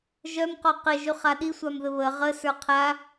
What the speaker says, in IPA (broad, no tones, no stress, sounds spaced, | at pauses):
ʒ œ m q ɔ q ɘ ʒ y χ a ɗ i sʷ a m ð ɘ β ə ʁ ə s ə˞ qʰ a